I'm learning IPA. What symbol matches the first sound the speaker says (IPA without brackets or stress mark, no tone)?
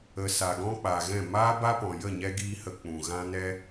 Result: ə